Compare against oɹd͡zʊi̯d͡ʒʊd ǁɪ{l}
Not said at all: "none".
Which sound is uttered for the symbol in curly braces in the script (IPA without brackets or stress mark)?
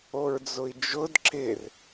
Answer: r